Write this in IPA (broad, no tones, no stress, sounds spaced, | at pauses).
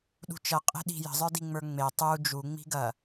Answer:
ɗ ṳ t͡ʃ ɐ qʼ e̤ ɗ i̤ j ə̤ zˤ ə˞ d i ŋ͡m ə˞ ŋ͡m e tˤ u d͡ʒ u ŋ͡m i̤ ɡ ɐ